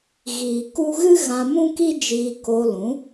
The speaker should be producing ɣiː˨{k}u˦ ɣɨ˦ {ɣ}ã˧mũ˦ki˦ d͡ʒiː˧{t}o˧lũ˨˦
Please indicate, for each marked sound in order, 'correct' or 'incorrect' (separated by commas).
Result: correct, correct, incorrect